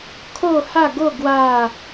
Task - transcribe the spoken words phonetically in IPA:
kʰ o˥˧ h a˥˧ ɡ o˥˧ ɡ w a˥˧

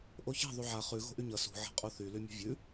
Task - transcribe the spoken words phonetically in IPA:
ʔ o ç a̤ ðˤ u ʕ a χ ʉ ɣ o̤ ʔ y ɲ ʌ s ṳ ʕ a̤ qʼ o θ y l y mʲ o̤ vʲ ʉ

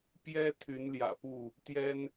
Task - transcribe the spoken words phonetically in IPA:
p j ɛ˦ t̪ʰ y˨˦ n l j ä̰˨˩ p u˥˨ | t̪ j ɛ˦ n

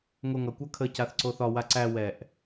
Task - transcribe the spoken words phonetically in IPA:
ŋ o ŋ ʌ kʷ ʌ kʰ ə c a θ ǀ o θ ɒ w a ǀ æ w ɛ ʔ

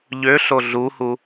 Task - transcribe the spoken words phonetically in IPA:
ʎ ø ɬ o ɮ u h u

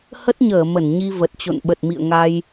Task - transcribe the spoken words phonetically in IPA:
h ə˦˥ t̚ ɲ əː˧˩ m ə˧˩ n ɲ i˧ v ə˨˩ t̚ t͡ɕ o̰˧˨ n ɓ ə˨˩ t̚ m ḭ˧˨ ə̯ ŋ a˧ j

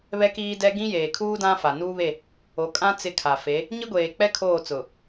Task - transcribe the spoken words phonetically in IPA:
β ɛ˦ k iː˦ d ɛ˦ ɡ ĩ˦ j eː˨ kʰ uː˦ d ã˦ f a˨ n uː˦ β e˦˨ | o˨˦ kʼ ã˦ t͡s ɪ˦˨ kʰ a˨ f e˨˦ | ɲ i˦ ɡʷ eː˨ k͡p ɛ˦ kʰ oː˦˨ t͡s ʊ˨

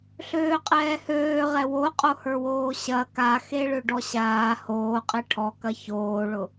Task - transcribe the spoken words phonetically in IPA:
ɬ øː qʼ ɛː h øː ʁ ɛ w o qʼ o h ə˞ w oː ɕ ɐ k a x e ɭ ø ɖ ɔ ɕ aː h oː qʼ e ʈʰ ɔ k ɐ ç oː ɭ ʊ

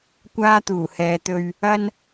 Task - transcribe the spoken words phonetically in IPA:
kʷ aː˥ t̪ uː˨˩ h ɛː˨˧ t̪ ɵ˧ ɥ | ɐ˥ n

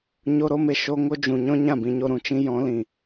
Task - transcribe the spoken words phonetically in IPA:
ɲ o˦ ɾ o˦ m e˧ ʃ o˦ ŋ o˦ d͡ʒ ũ˨ ɲ ɔ̃˦ ɲ ã˦˨ b ĩ˧ ɲ o˧ ɾ ũ˨ t͡ʃ ĩ˦ j ɔ̃˨˦ l ĩ˨

